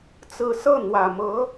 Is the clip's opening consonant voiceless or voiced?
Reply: voiceless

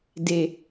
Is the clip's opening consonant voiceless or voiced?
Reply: voiced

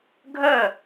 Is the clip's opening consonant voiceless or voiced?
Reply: voiced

